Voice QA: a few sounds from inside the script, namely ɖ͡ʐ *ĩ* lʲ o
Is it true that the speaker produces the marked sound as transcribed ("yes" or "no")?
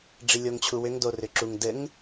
no